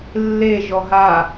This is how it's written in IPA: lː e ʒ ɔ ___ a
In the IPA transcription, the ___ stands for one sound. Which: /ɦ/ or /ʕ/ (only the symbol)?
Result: ɦ